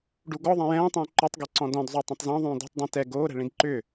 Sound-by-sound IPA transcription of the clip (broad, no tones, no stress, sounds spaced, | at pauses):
ɖ u ɡ ɔ ðˤ ɛ̃ j ɛ̃ː tˤ ũː ǃ o tˤ ɡ ɛ ǀ ɔ̃ d ɔ̃ d zˤ o tˤ õ tˤ z ɔ̃ ðˤ ũː d o̤ tˤ dˤ ĩ t ɛ ɡ oː ɾ ɛ̤ ɭ ĩ d ǃ ʏ